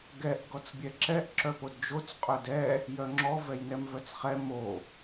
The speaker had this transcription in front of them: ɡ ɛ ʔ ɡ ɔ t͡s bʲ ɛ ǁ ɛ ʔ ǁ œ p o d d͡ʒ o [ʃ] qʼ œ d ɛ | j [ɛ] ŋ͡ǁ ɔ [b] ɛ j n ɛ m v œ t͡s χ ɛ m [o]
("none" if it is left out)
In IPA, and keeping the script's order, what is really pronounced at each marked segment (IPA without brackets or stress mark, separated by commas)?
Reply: t͡s, œ, v, o